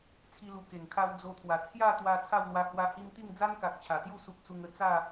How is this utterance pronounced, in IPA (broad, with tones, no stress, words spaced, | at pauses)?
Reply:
t͡sʰi˧lu˨˩ ke˨˩ŋkʰa˧w d͡zo˧t̪ʰwa˨˩ t͡sʰja˥˧t̪wa˧ t͡sʰa˥˧wlwa˧ hwa˧hi˧mt̪i˥˧ŋd͡za˦n ka˨k̚t͡ɕʰa˨˩t̪ju˥˧ su˦k̚ su˧ŋə˧ t͡sa˥˧